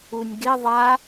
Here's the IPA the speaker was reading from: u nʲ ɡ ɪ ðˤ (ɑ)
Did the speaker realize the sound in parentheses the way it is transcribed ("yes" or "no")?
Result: no